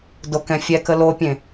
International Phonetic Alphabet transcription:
dokɛ̃fʲɛkə lopʲẽ

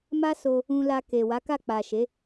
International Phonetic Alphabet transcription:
ma˦so˧ | ũ˧la˧ke˨ wa˨˦ka˦˨ k͡pa˨ʃe˨˦

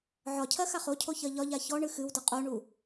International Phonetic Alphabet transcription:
ʕɒcʰɜxaχ ocʰoçɜ ʎɒʎa çɔɳɨ xɨwdə qʼoɳu

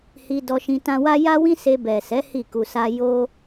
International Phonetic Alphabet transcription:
hi˧dɔ˧ʃĩ˧ tã˧wa˦ ja˦wĩ˦se˧ bɛ˨sɛ˨˦ hi˦˨ku˧sa˦ jo˦

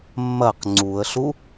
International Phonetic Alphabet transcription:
mːɐq ŋ͡ǀuə̯ɬu

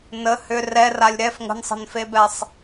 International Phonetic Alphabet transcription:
nə hʏ rɛralʲ ɾɛf ŋə̤nsˤə̤nfebɛsˤ

